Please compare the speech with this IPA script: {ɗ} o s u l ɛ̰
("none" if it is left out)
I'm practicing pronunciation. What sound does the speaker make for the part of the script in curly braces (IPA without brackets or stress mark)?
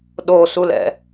ɗ